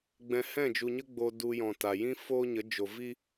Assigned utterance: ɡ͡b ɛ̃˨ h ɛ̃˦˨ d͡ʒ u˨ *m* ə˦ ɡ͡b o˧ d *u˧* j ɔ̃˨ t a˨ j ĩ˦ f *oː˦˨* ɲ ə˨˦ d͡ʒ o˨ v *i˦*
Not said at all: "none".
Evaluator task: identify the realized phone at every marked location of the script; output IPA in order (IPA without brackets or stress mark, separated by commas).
ɲ, u˧, oː˦, i˦